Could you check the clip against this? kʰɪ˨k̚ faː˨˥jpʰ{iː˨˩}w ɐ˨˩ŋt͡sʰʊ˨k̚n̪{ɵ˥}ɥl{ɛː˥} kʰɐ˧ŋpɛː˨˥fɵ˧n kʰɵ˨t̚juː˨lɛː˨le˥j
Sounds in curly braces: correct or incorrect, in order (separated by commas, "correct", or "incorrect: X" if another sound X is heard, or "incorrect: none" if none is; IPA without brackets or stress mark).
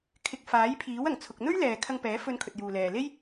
incorrect: iː˨˥, correct, incorrect: ɛː˨